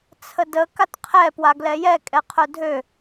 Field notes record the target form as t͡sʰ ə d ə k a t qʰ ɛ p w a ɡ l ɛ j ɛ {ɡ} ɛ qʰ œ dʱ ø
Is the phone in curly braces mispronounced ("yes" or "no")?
yes